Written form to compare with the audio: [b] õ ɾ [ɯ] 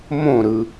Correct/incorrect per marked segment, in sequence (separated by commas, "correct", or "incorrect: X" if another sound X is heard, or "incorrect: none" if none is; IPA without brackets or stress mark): incorrect: m, correct